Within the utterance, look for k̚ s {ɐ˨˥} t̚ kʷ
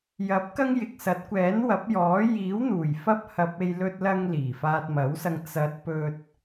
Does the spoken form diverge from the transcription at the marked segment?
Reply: no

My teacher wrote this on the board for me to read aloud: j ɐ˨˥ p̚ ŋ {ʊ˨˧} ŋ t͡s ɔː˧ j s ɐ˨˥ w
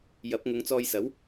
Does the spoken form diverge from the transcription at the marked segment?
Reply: no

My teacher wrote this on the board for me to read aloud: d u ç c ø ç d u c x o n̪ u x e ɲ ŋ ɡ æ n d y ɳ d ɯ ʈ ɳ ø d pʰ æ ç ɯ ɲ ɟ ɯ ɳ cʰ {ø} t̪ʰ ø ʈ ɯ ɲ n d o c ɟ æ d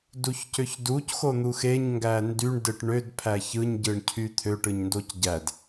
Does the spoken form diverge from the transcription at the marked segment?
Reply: yes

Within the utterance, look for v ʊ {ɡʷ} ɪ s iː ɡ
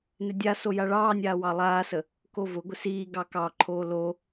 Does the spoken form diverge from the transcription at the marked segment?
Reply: no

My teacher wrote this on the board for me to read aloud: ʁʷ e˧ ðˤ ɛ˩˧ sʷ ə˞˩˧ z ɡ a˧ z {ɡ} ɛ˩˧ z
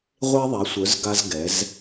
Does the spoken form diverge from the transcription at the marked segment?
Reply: no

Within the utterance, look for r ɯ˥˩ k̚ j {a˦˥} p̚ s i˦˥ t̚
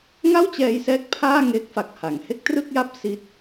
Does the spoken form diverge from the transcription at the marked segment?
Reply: no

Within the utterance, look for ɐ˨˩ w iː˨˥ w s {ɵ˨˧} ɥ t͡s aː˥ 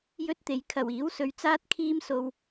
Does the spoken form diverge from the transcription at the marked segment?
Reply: yes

